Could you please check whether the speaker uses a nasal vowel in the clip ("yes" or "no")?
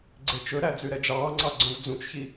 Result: yes